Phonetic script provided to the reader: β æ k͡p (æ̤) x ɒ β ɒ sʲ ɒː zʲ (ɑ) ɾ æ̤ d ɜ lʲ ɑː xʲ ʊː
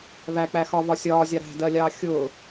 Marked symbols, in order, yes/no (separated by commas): no, yes